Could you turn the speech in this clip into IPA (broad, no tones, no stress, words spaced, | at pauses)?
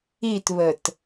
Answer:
itβət